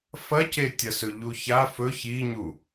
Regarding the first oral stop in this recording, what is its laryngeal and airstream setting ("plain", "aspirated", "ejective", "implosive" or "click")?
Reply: plain